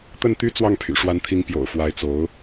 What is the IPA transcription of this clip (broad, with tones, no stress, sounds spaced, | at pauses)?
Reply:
t̪ ə˥˩ n t̪ y˥ t͡s w ɑ˥˩ ŋ pʰ y̰˨˩ ʂ w a˧˥ n t̪ʰ i˧˥ ŋ p j o̰˨˩ ʊ̯ f w a˧˥ ɪ̯ t͡s o˧˥ ʊ̯